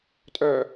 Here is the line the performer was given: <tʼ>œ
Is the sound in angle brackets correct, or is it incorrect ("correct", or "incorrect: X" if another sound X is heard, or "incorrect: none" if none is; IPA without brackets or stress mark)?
correct